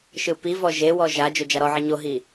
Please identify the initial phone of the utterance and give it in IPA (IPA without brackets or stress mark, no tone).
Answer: ʃ